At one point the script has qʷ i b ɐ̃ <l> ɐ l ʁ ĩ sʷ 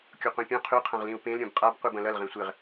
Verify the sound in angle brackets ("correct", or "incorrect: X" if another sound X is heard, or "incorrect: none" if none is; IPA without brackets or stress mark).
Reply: correct